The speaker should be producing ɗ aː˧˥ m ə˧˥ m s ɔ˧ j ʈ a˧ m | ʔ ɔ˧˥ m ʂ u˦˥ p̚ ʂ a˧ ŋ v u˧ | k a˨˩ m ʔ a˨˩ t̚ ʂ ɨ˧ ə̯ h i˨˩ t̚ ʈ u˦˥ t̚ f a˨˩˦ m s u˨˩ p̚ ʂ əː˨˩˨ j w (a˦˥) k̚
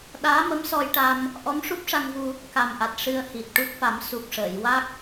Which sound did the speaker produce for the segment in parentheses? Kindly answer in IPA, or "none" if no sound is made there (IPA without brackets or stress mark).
a˦˥